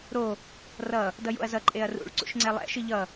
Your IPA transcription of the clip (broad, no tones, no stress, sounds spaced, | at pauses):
ɾ o | r ʌ | d ʌ j o̰ ɐ̯ z ʌ ǃʼ e ɐ̯ r ṵ ɭ ǀ ṵ ʃ ŋ͡ǀ ɛ lˠ ɛ̰ ʃ ɯ ʎ ʌ